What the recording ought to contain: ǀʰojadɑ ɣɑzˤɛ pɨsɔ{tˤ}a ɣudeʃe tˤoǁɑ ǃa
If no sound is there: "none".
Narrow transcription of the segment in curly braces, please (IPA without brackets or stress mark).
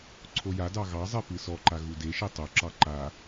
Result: ǃ